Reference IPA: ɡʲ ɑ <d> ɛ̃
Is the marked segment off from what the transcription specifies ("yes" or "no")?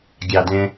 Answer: no